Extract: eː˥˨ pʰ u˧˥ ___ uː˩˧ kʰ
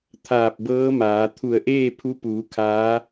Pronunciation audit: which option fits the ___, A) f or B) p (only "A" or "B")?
B